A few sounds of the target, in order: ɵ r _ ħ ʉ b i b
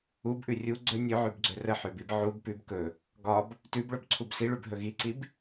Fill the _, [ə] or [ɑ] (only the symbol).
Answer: ə